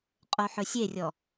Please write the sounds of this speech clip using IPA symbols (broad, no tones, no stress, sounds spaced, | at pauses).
qʼ o ħ ɵ sʲ e rʲ ɔ